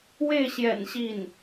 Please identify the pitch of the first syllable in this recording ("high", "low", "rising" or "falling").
falling